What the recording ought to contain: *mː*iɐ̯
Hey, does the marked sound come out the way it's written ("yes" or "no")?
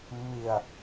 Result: yes